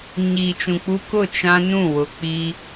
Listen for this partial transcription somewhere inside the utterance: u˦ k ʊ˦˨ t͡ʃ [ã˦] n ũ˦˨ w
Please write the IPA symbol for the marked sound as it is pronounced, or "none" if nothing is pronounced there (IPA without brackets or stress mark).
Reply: ã˦